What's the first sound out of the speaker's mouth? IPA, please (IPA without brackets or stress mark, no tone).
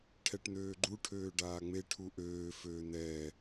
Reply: ʈʰ